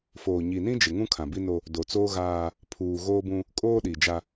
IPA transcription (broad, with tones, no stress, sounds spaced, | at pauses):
f oː˨ ɲ i˨ n ĩ˦ d͡ʒ ɪ˨ ŋ ũ˦ kʰ ã˨ b i˦ n o˦ | d o˨ t͡s oː˦ ɣ aː˦ | pʰ uː˨ ɣ oː˦ b ũ˦ | kʼ oː˦ ɗ i˨ d͡ʒ a˦